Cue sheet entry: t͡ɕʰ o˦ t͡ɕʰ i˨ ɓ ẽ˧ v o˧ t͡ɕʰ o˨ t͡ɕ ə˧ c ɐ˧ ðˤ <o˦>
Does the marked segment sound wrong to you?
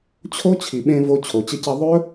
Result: yes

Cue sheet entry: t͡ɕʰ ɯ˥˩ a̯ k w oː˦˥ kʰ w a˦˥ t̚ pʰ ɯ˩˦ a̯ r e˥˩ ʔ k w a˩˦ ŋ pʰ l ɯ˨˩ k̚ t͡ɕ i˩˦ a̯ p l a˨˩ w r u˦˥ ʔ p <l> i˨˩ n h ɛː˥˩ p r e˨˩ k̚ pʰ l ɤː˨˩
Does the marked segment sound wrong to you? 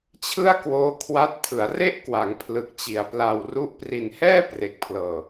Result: yes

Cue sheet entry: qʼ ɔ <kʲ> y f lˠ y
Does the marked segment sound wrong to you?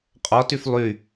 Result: yes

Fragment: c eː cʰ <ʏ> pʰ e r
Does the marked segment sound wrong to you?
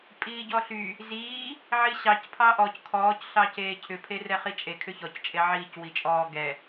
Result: no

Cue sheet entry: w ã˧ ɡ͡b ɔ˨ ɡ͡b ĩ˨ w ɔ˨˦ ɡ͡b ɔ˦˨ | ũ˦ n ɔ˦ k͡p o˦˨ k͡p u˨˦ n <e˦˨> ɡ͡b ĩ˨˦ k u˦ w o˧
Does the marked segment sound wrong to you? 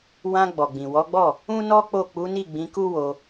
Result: yes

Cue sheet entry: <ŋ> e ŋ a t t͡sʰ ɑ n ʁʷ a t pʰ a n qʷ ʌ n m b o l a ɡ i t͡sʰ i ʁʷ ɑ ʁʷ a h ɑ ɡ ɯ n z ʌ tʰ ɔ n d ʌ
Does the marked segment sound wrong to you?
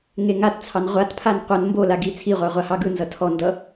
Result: no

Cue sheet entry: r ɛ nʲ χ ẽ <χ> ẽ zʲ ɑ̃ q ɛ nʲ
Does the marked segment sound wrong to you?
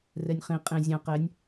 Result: yes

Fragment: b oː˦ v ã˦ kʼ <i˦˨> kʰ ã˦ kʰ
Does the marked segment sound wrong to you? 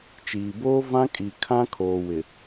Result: yes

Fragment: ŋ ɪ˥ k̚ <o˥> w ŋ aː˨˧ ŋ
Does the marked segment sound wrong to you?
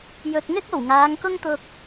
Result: yes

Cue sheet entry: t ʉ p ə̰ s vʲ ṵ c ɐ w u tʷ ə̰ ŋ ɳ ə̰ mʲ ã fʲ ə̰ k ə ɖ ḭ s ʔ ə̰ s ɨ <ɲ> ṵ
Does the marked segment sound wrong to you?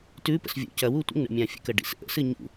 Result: no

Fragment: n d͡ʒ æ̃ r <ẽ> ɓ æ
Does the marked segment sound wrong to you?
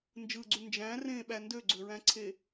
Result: no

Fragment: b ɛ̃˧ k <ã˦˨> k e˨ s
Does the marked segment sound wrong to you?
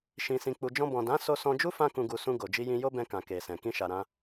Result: yes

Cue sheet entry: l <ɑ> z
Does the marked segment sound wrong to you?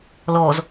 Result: yes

